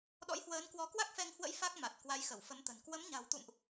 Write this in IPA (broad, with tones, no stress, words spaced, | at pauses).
ɗɔ̰˧˥jhwəː˨˦nkwɔ˨˦ kwa˦˥k̚fɛ˧ŋhwə̰˧˥j fa˦˥k̚ma˨˩t̚ kwa˨˦jxə˧˩wfə˨˦mt̪ə̤˨˩n kwə˨˦mɲa̤˨˩wt̪ṵ˧˨mʔ